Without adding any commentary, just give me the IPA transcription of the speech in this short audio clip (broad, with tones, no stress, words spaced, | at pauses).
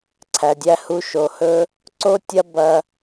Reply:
ǀʰæ˨dʲæ˧hu˧ ʃo˨hɵ˧ | ǀo˦tʲɐ˦ bɐ˧